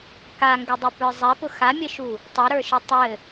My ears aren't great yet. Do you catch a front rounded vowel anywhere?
yes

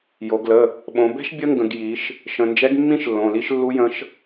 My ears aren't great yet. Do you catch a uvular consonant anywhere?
no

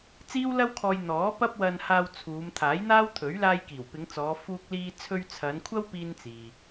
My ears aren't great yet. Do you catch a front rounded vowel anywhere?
no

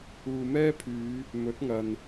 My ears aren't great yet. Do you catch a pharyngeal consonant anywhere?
no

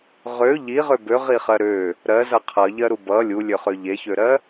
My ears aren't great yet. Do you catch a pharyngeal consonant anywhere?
no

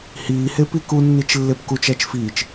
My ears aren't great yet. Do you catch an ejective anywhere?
no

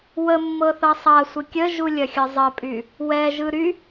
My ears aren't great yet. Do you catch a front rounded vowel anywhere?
yes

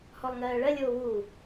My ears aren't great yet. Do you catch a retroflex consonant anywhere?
yes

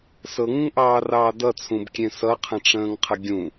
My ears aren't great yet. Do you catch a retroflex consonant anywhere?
yes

